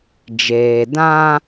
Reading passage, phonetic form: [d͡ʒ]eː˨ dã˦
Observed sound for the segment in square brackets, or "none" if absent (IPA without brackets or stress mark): d͡ʒ